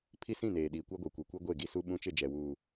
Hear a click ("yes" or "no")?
no